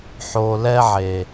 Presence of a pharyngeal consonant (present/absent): present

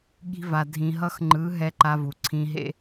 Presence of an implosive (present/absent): present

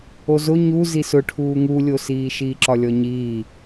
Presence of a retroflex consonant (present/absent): present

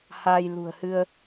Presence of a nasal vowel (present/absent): absent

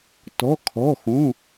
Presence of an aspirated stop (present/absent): present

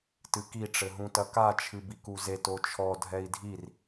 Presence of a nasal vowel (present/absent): present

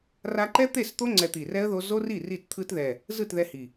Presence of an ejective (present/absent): absent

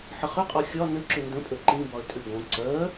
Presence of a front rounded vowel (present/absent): present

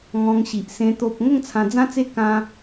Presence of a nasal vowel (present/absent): present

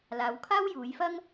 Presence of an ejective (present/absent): absent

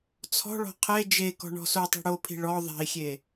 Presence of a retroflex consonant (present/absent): present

